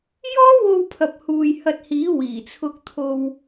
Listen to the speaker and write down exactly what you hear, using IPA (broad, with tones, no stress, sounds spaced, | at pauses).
j ɔː˥ w o˧ w pʰ ɐ˨ p̚ h uː˨ j h ɐ˧ t̚ h iː˨˥ w iː˨˩ t͡sʰ ʊ˧ k̚ t̪ʰ o˧ w